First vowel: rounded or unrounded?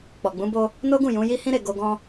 rounded